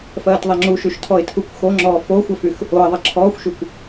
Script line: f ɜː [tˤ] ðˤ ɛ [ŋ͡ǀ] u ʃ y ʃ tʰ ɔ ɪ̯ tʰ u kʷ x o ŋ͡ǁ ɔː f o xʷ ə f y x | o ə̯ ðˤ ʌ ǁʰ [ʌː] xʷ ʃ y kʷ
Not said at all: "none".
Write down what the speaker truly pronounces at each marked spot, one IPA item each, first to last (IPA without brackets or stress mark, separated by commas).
t, ŋ͡ǁ, ɔː